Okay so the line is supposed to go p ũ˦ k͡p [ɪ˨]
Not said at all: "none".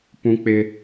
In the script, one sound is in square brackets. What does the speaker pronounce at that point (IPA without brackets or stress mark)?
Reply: ɪ˦